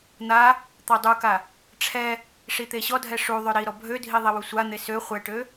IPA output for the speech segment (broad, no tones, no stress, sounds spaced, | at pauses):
n̪ a | t̪ ɔ dˤ u k a | ʈ͡ʂʰ ɛ | ʂ i t̪ e ɕ ɔ dʱ ɛ ʂ u ðˤ ø ɾ i ɾ ɔ bʱ ø dʱ i ðˤ i w u sʷ a n̪ e s ø χʷ ɛ ʈ ø